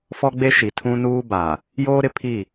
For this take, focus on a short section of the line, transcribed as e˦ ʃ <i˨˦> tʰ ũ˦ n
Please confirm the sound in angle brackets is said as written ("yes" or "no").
no